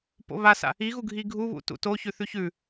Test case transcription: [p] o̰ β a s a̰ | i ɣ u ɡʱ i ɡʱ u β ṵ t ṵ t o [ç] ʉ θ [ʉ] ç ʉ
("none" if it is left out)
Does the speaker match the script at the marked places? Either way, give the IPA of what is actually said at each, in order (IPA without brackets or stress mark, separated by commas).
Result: p, ç, ʉ